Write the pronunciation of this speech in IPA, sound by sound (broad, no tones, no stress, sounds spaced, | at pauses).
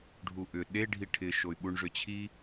ɖʱ u ʔ ʏ ɗ e ɖʱ i ʈʰ ɪ ʃ o y̯ ɓ u ɳ ʐ ʏ t͡ɕʰ i